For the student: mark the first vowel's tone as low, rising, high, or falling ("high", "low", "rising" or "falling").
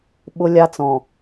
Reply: high